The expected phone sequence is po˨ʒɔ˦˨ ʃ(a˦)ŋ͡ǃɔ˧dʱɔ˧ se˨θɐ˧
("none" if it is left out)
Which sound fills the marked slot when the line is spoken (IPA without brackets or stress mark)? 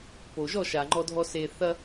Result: a˨